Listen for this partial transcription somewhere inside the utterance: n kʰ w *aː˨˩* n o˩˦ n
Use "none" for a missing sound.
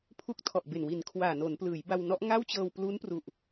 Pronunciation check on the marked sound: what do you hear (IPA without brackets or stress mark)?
aː˨˩